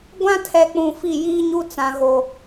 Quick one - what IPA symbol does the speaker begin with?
ɡʷ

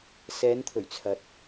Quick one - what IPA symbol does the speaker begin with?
s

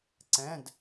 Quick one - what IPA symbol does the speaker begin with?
ǀ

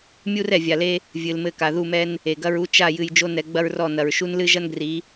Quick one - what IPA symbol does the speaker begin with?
mʲ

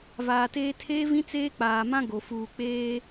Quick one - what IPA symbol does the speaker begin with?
v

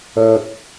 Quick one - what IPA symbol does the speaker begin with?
ɐ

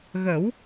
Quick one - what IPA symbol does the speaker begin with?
ɣ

